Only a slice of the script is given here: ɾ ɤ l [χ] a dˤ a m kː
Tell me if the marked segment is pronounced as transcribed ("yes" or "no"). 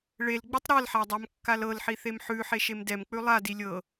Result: no